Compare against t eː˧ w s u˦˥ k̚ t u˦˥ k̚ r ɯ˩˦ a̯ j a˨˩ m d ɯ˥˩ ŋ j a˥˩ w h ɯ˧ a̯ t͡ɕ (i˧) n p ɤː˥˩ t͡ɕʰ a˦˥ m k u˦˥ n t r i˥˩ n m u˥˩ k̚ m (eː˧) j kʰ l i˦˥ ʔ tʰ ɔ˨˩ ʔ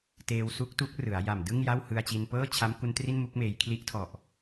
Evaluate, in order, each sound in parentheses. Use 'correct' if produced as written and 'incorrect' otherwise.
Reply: correct, correct

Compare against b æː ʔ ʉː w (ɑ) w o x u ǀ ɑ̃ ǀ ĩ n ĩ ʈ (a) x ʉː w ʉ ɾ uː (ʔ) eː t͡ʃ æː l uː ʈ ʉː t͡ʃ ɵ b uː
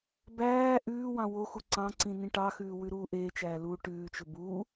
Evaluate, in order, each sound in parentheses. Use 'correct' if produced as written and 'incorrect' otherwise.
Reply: incorrect, incorrect, correct

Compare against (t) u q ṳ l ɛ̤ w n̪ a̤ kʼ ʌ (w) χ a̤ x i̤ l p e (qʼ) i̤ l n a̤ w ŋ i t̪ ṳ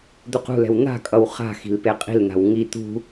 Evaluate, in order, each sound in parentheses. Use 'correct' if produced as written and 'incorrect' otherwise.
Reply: incorrect, correct, correct

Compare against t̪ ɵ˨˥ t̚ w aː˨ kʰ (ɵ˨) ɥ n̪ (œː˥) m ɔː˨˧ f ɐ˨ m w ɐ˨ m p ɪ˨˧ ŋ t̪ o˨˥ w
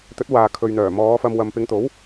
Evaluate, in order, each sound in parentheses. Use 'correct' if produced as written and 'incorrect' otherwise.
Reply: correct, incorrect

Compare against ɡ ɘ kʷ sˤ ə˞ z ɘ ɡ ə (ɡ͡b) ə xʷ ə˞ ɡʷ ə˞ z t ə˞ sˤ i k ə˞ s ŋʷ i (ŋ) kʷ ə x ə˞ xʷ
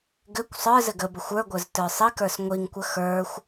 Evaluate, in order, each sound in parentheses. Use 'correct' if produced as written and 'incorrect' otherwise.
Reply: incorrect, correct

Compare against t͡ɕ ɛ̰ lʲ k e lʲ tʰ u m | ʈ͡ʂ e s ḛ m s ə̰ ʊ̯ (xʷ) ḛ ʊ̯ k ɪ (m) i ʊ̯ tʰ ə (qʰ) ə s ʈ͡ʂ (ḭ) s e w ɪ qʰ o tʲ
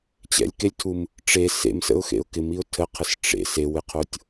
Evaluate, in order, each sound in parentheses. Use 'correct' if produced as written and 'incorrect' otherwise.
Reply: incorrect, correct, correct, incorrect

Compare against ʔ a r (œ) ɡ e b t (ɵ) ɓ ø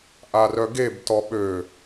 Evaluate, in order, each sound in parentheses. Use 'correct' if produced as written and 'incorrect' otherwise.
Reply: correct, incorrect

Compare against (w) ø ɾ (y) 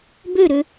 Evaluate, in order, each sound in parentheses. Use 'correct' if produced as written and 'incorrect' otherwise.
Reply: incorrect, incorrect

